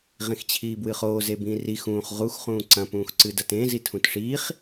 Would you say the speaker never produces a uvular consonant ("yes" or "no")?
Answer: no